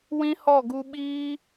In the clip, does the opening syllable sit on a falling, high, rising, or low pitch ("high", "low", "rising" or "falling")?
high